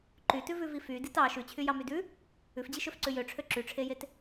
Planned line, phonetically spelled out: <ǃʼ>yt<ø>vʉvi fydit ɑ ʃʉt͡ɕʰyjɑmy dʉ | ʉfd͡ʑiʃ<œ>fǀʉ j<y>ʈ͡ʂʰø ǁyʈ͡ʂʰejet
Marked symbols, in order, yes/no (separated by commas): no, no, no, no